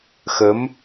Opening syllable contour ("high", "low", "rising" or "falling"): rising